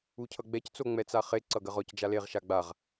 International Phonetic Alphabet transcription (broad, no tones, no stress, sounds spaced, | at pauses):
u cʰ ʌ ɡ͡b ɛ c t͡s o ŋ͡m ɛ t͡s a χ e ǀ ʌ ɡ ɜ ʁ ɔ c d͡ʒ a l e ʁ ʃ a ɡ͡b a ʁ